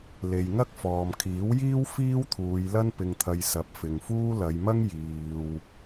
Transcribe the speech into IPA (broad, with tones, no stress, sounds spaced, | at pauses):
l e˨ j ŋ ɐ˥ k̚ f ɔː˨ m kʰ iː˨˥ w j iː˥ w f iː˥ w t̪ʰ uː˨˧ j l ɐ˥ n p ɪ˧ ŋ t̪ʰ ɐ˧ j s ɐ˨˥ p̚ f ɪ˨ ŋ f uː˥ l ɐ˨˧ j m ɐ˥ ŋ j iː˨ w